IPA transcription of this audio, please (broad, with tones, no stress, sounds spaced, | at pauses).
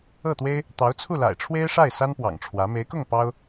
ɤ˥˩ t̪ w e˥ ɪ̯ | t̪ ɑ˧˥ ʊ̯ t͡sʰ u˥˩ l a̰˨˩ ɪ̯ ʈ͡ʂʰ w e˥ ɪ̯ ʂ a˥˩ ɪ̯ s a˥ n p w ɑ̰˨˩ ŋ ʈ͡ʂʰ w ä˧˥ m e˧˥ ɪ̯ k ʊ˥˩ ŋ p ɑ˥ ʊ̯